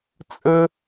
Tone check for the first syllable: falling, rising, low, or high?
high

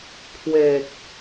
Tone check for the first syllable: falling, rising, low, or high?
low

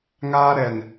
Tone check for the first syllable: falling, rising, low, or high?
high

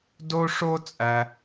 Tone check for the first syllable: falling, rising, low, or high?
high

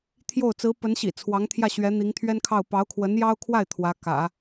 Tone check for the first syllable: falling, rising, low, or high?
falling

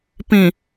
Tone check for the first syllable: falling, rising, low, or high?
low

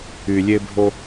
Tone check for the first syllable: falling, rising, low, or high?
low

